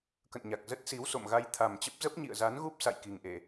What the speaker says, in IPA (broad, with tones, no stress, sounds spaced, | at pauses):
k ə̰˧˨ n ɲ a˨˩ k̚ z ə˦˥ t̚ s i˨˦ w s o̰˧˨ m ɣ a˧ j t̪ʰ a˨˩ m t͡ɕ ə˦˥ p̚ z ə˦˥ p̚ ɲ ḭ˧˨ ə̯ z a˨˦ n ɣ u˦˥ p̚ s a̰˧˨ j k i˨˩ ŋ ʔ e˧˩˨